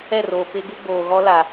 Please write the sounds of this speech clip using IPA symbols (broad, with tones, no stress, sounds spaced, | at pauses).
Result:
ɛ˦˨ r oː˨ p ɪ˦ ɡ u˦ ɡ͡b oː˨ ɣ ɔ˦ l a˨